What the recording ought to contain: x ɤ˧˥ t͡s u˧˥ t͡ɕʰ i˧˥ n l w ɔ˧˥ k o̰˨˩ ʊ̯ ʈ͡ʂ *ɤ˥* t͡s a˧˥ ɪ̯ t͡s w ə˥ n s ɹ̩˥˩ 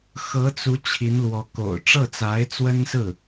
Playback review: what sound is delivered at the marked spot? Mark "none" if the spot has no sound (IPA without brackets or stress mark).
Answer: ɤ˥˩